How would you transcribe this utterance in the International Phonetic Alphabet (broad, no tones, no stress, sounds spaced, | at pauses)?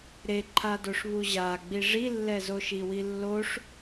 ɾ e ǃʰ a d o ʂ β u ʑ a ɡ͡b i ʐ i lː ɛ z o ʃ i w i lː o ʂ